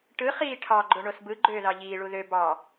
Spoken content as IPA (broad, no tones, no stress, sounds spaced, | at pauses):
ʈ ɯ χ iː ʈʰ ɑ ɡ͡ǃ o ɳ o s b ɯ ɡ͡ǃ øː ð ɑ ʎ iː ɭ u ð ø b ɑ